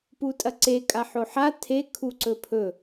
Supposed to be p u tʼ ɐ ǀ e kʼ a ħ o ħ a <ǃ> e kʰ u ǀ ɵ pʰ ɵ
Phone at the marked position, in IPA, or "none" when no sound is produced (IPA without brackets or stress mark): tʰ